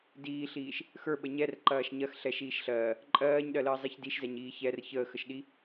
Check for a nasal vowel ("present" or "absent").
absent